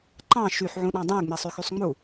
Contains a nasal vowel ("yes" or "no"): yes